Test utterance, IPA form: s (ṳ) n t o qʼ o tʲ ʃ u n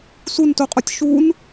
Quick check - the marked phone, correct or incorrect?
incorrect